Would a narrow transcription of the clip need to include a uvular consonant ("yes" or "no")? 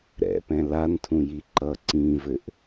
no